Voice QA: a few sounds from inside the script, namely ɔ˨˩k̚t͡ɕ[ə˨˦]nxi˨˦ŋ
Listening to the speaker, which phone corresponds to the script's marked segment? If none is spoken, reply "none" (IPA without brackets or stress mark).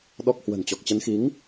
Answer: ə˨˦